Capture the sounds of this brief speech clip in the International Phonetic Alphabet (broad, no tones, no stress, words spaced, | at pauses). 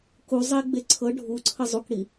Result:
ku zˤeɡ͡be ǀʰɤ ɖʱuǀʰə zˤukɽi